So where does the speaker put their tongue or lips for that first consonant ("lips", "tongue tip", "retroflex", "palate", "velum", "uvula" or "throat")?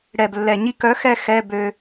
retroflex